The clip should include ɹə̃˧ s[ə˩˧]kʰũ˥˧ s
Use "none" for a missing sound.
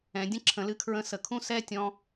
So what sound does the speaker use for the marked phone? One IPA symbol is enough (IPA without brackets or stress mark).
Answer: ə˩˧